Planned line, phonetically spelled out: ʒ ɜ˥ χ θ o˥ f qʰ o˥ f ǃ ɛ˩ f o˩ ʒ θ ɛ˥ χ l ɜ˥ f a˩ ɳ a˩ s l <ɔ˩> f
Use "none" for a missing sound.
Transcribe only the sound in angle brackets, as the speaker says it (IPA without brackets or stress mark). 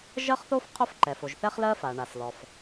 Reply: ɔ˩